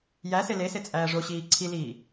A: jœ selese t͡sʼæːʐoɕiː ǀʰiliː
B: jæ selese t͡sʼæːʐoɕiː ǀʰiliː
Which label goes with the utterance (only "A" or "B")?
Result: B